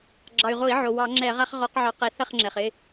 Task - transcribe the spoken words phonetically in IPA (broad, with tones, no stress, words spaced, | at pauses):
ɡ͡ǁɑ˩y̯ʁo˧˩˧i̯ʕo˩ wɑ˧˩˧ŋ͡ǁɛ˧˩˧ʁa˦χʁɔ˨˦q ʕɑ˨˦qɛ˨˦ θɐ˥˨χŋ͡ǁɛ˩χɪ˩˧˩